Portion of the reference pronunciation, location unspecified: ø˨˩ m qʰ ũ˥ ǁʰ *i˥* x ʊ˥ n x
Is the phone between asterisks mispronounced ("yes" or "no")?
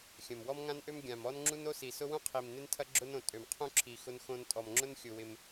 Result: yes